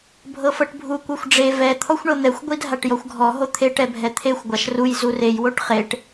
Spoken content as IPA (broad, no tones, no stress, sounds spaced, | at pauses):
bʱ ɤ f ɤ ʈ bʱ u kʷ ɤ xʷ ɖ͡ʐ e v ɛ t̪ʰ ɔ xʷ ɳ ɤ n̪ ɛ xʷ ɡʷ i dʱ a ʈ j ɔ xʷ ɡʱ ɔ ɦ o t̪ʰ e ʈ ɛ bʱ ɛ t̪ʰ e xʷ ɡʷ a ʃ r u j z u r e j w o ʈ χ e ʈ